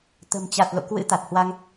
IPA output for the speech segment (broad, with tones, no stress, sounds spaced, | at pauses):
t̪ ə̤˨˩ m t͡ɕ a˨˩ t̚ l o̰˧˨ k w ɨ̰˧˥ t̪ a˨˩ t̚ h w a˧ ŋ